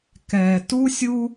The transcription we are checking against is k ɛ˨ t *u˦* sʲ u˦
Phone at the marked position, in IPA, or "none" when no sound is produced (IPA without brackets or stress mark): u˦